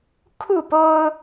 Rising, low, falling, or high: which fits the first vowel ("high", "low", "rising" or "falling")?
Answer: falling